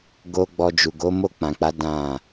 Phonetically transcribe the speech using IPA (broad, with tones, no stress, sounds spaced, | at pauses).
ɡ o˦ ɡ͡b ɔ˧ d͡ʒ u˨ ɡ o˨˦ m o˦˨ k͡p ã˨ k͡p a˨˦ d ã˦˨